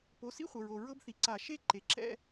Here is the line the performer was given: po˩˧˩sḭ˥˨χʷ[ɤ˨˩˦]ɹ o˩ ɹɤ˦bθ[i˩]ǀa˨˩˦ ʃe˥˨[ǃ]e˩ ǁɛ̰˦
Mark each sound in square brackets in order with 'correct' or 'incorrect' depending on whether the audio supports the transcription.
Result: incorrect: ɤ˩, correct, correct

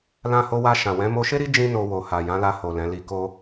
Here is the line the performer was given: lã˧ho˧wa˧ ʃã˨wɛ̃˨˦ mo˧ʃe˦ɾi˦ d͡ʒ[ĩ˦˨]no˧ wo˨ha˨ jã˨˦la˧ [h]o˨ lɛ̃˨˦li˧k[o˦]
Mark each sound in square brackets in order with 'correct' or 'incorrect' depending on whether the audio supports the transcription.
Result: incorrect: ĩ˦, correct, correct

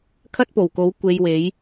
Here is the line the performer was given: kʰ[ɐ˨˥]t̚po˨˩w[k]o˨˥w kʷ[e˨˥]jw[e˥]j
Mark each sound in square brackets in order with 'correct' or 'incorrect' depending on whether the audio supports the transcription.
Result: incorrect: ɐ˥, correct, incorrect: e˧, incorrect: e˨˥

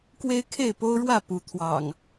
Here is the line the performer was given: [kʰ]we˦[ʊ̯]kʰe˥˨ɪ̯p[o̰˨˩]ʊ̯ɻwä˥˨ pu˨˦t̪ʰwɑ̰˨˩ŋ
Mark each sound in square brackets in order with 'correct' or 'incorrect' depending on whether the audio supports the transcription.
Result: incorrect: k, incorrect: ɪ̯, incorrect: o˦

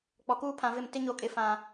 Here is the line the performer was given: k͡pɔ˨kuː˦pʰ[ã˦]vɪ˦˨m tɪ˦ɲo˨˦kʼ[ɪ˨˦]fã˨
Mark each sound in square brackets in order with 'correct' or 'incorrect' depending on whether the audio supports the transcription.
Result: incorrect: ã˨, incorrect: ɪ˨

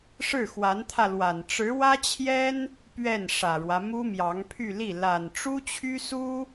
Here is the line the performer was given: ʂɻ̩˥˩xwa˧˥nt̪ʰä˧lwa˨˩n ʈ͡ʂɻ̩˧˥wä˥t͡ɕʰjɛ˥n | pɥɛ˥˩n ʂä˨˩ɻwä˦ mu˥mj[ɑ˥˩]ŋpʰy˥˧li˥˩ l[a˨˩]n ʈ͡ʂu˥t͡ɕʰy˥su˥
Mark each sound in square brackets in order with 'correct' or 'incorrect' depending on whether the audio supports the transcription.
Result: incorrect: ɑ˧˥, correct

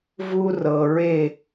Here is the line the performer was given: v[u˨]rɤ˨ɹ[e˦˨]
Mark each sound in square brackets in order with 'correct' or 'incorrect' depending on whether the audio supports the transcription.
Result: incorrect: u˦, correct

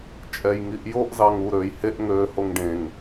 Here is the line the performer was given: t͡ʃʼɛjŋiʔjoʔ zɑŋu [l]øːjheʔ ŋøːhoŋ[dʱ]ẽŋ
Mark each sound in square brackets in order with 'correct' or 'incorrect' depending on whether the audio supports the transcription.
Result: incorrect: ɾ, incorrect: ɖ

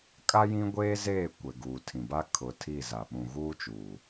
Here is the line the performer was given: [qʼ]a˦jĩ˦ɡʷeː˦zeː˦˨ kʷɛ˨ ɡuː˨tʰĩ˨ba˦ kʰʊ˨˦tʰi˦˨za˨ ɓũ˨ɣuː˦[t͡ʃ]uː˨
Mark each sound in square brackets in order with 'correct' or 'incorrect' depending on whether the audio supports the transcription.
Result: incorrect: kʼ, correct

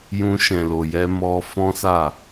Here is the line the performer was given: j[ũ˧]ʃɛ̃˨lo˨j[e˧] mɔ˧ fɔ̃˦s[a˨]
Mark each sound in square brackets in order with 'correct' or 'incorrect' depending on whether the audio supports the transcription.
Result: correct, incorrect: ɛ˧, incorrect: a˦˨

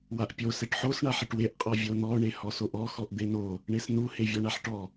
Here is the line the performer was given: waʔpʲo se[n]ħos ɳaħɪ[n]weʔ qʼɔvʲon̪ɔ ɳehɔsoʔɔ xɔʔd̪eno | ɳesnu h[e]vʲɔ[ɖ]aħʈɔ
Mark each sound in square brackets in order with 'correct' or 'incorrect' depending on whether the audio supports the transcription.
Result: incorrect: ʈ, incorrect: ʈ, correct, incorrect: ɳ

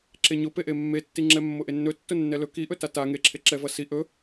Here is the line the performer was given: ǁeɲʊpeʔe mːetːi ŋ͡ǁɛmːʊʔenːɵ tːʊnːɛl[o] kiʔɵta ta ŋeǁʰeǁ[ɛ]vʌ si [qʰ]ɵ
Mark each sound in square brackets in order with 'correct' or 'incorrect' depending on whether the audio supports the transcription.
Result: incorrect: ɵ, correct, incorrect: ʔ

